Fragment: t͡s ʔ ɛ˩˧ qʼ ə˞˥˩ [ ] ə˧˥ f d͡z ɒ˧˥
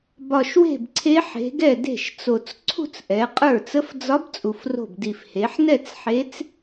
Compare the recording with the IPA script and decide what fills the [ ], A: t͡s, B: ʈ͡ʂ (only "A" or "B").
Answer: A